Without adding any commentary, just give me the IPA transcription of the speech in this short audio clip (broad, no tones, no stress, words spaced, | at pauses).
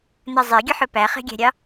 nɜzˤeɡʲɵħɵ pæχe̤ɡʲæ̤ɾʲɑ